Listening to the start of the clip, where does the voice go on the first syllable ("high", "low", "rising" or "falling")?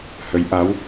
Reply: rising